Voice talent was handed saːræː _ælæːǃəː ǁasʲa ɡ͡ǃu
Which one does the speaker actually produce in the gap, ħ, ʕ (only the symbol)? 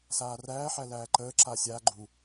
ħ